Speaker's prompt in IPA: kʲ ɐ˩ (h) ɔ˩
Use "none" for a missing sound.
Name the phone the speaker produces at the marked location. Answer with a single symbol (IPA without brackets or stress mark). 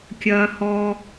h